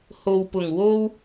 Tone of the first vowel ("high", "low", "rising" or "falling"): low